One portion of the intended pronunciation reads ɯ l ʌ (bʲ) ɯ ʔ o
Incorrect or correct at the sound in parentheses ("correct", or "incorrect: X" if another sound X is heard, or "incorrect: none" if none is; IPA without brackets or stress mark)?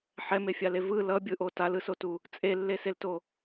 correct